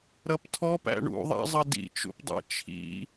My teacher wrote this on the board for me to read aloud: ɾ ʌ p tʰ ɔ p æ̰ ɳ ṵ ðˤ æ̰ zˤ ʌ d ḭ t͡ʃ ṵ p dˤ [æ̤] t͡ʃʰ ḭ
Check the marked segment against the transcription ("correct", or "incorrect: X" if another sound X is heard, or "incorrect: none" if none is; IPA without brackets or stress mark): incorrect: æ̰